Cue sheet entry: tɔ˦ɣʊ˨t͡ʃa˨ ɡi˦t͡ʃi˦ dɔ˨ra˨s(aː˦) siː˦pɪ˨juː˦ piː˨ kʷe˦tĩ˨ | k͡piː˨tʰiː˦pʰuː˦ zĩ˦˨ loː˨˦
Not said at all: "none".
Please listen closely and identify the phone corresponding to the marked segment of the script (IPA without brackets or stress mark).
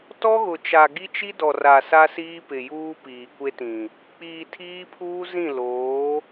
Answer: a˦